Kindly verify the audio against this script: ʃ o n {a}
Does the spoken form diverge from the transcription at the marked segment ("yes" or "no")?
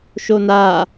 no